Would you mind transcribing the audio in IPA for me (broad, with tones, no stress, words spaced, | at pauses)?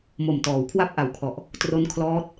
mo˨˩mtɔː˩˦wkʰwa˥˩p̚ ʔa˨˩wkʰɔ˨˩ʔ | tro˦˥nkʰlɔː˦˥t̚